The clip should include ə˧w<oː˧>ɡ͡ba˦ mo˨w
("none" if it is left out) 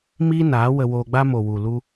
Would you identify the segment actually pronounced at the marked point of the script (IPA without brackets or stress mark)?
oː˧